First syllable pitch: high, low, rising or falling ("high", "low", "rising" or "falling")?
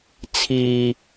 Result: low